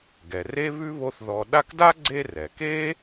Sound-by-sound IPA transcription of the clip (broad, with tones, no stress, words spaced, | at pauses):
ɡɛ˩re˥ βʉ˥βo˦θ ðɔ˨ɗa˦kda˥ɡ͡ǀe˦ rɛ˩ke˥